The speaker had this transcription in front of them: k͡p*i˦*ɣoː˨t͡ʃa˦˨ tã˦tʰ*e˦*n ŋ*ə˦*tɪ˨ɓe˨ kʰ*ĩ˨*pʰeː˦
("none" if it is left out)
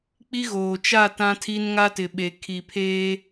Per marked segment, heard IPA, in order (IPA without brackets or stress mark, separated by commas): i˦, i˦, a˦, i˨